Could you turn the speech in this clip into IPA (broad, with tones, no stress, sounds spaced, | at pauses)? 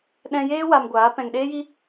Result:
ɗ ɛ̃˧ j eː˦ w a˧ m ɡʷ aː˨˦ p ɛ̃˨ ŋ ɗ eː˦ j i˦